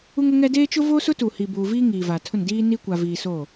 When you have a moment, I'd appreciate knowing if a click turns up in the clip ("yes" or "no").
no